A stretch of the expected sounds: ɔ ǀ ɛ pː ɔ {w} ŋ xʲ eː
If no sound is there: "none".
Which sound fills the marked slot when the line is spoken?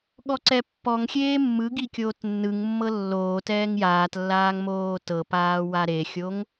none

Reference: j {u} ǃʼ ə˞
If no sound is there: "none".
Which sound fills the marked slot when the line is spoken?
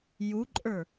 u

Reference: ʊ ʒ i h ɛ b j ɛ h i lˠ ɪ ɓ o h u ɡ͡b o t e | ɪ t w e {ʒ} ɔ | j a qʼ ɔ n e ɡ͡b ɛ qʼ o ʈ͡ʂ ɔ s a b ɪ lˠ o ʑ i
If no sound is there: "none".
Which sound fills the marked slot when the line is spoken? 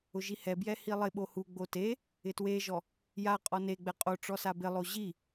ʒ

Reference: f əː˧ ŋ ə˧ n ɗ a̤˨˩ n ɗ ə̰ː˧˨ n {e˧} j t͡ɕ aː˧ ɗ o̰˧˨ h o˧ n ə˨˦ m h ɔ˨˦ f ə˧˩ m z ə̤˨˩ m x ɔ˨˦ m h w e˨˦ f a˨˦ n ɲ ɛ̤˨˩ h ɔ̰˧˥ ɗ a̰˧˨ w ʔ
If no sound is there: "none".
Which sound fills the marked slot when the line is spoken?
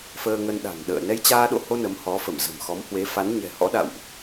ɛ˧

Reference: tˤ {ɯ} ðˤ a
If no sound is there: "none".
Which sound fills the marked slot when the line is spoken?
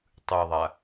ɯ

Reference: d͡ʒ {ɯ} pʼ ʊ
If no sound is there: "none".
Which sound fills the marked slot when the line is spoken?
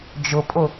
ʊ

